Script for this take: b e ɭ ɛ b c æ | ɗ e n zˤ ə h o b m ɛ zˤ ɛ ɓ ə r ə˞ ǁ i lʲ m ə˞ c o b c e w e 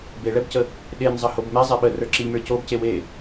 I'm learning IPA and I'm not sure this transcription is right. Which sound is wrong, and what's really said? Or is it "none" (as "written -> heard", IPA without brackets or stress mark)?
æ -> ə